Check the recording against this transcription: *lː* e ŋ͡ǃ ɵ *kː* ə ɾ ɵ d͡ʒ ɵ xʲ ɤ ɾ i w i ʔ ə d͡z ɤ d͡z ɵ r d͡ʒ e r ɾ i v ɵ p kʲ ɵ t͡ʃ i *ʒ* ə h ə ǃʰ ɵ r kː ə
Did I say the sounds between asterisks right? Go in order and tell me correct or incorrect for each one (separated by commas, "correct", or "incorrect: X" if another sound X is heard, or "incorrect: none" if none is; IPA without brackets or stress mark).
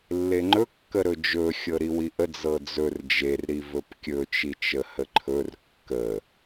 correct, correct, incorrect: t͡ʃ